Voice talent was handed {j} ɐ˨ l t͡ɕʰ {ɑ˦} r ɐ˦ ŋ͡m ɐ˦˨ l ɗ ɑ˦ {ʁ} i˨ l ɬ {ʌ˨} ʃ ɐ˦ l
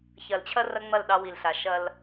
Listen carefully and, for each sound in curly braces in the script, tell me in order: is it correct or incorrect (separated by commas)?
incorrect, incorrect, incorrect, incorrect